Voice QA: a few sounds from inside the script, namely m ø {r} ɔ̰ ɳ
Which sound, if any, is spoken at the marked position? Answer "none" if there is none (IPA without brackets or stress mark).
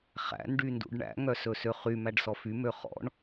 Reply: χ